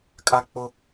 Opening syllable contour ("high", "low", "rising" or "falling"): high